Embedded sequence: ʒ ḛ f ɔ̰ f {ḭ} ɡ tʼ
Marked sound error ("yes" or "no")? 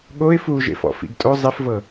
no